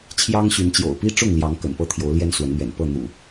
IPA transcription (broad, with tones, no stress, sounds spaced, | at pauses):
t͡ɕʰ j ɑ˦ ŋ ɕ y˨˦ n t͡ɕ j o̰˨˩ ʊ̯ p i˦ ʈ͡ʂ ʊ˥˨ ŋ l j ɑ˨˦ ŋ k ə̰˨˩ n p ɤ˥˨ t̪ʰ j o˨˦ ʊ̯ l j ɛ˦ n s w ə˨˦ n n̪ ɥ ɛ̰˨˩ n p ɤ˥˨ n̪ ṵ˨˩